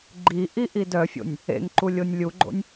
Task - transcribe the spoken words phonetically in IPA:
ɡ͡ǃiʔiʔid œfʲo̰nʲ | ḛŋǃulʲonʲ lʲuɡ͡ǃo̰nʲ

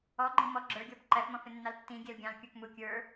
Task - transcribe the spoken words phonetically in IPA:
ɔɡ͡ǃĩ mɔ ɡ͡ǁə˞ɡʲɔb ǃæfmɔ̃fɪnːɑl tːĩɡʲɛl ɡʲɑ̃lkʲə˞k mu kʲə˞

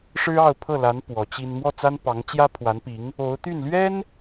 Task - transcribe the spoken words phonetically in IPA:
ʂɻ̩˥ɑ˥˧ʊ̯pʰɤ˥˩la˧˥n pwɔ˧˥t͡ɕi˥n mwɔ˥˩t͡sa˥npɑ˧˥ŋ t͡ɕjä˥ pʰwa˧˥npi˧˥ŋ | o˧˥ʊ̯t̪y˥˩n lɥɛ˥n

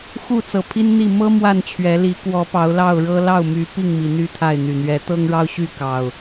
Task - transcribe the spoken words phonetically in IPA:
xu˥˨t͡sɤ˨˩pʰi˦nn̪i˥˨ mɤ˦ mwa˥˨nt͡ɕʰɥɛ˨˦ li˨˦ kwɔ˨˦pɑ˨˦ʊ̯lɑ˥˨ʊ̯ɻɤ˦ lɑ˥˨ʊ̯my˨˦ pi˥˨ŋmi˩n̪y˥˨ t̪ʰa˥˨ɪ̯n̪y˨˩ n̪ɥɛ˨˦t̪ɤ˦ŋɻɑ˦ʊ̯ ɕy˥˨kɑ˨˩ʊ̯

